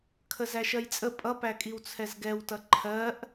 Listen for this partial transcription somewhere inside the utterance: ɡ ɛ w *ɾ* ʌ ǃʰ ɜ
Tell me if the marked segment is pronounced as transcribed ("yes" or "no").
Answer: no